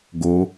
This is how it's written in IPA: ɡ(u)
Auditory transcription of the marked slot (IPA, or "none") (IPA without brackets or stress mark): o